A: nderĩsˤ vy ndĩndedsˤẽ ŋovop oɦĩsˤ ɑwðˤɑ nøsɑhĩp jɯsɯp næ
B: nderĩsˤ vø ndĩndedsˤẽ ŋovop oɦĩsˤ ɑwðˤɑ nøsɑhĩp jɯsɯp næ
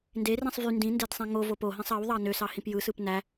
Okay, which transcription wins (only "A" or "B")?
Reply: A